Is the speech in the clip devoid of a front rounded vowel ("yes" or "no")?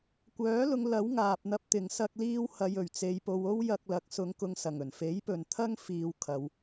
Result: no